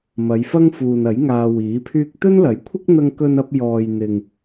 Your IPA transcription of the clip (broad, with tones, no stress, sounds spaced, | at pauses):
m ɐ˨˧ j f ɐ˥ ŋ f uː˨ n ɐ˨˥ j ŋ aː˧ w iː˨˥ pʰ yː˥ k̚ t̪ ɵ˥ n l ɐ˨˥ j kʷʰ ɪ˥ k̚ n̪ ɐ˧ ŋ k ɵ˧ n ɐ˧ p̚ j ɔː˨ j n̪ ɪ˨ ŋ